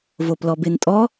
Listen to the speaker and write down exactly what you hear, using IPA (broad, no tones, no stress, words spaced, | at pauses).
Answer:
voplɔbentʼɔ